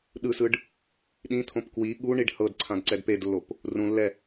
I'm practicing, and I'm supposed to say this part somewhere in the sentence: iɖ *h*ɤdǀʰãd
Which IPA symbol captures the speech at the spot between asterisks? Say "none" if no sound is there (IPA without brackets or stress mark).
h